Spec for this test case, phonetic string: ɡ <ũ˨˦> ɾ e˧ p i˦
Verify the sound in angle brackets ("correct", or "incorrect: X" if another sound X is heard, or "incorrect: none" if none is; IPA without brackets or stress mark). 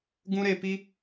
incorrect: ũ˦